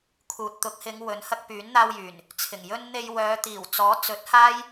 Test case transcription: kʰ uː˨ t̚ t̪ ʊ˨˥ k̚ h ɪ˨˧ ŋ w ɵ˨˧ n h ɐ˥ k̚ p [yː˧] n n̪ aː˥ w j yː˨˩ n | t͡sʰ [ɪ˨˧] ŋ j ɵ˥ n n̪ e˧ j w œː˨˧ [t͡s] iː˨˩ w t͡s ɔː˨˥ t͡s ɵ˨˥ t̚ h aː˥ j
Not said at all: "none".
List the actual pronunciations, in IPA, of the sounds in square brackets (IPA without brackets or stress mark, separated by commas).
yː˨˥, ɪ˨˩, t̪